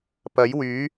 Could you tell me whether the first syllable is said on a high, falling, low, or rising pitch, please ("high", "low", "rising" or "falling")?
rising